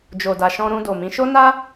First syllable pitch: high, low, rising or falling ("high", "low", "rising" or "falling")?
low